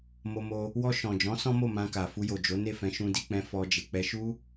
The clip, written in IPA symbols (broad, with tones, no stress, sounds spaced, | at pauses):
m o˧ m o˧ | w ɔ˧ ʃ ɔ̃˨ d͡ʒ ɔ̃˨˦ s ɔ̃˦ m o˦˨ m ã˧ k a˨ f u˧ j o˨ d͡ʒ o˨˦ n e˦˨ f ɛ̃˧ ʃ ũ˧ d i˧ k͡p ɛ̃˧ f ɔ˧ d͡ʒ e˨ k͡p ɛ˧ ʃ u˦